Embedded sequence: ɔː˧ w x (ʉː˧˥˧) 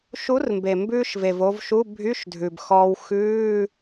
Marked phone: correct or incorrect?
correct